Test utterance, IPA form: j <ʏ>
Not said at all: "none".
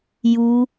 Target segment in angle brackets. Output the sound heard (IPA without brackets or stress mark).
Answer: u